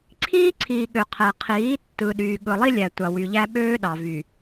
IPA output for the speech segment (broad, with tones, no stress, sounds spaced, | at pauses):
ǀʰ iː˦ ǀʰ iː˨ ɠ ø˨ qʰ æ˨ qʰ iː˨˦ tː ɯ˨ ɗ yː˨ ɠ ɯ˨ lˠ i˦ lʲ æ˨ tʷ ɑ˨ w y˨ ʎ æ˦ ɓ øː˦ ɗ ɑ˨ v y˨